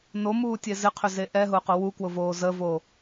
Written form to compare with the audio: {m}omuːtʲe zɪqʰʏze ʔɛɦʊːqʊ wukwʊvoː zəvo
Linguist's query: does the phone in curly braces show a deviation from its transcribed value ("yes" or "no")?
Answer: yes